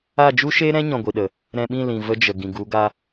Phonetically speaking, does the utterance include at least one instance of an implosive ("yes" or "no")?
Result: yes